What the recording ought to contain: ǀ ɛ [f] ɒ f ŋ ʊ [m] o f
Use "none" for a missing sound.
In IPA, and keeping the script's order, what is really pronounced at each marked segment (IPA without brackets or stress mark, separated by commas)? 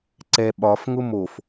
ɓ, m